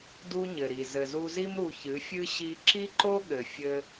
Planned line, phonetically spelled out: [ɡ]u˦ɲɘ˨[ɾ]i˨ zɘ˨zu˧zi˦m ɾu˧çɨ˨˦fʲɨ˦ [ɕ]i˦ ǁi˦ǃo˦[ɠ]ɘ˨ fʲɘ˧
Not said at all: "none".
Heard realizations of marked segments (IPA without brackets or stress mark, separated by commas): d, ɾ, ɕ, ɠ